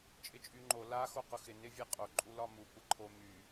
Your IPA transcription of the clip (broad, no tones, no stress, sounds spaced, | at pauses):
t͡ʃʼ ɪ t͡ʃʼ y ŋ͡ǃ o l a x o q ʊ x ɪ n ɪ vʲ ɛ qʼ o ǃʼ u l ɒ m u kʷ ɪ ǃʰ o m y